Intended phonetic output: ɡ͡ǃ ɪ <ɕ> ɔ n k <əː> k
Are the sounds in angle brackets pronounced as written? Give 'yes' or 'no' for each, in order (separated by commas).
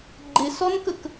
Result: no, no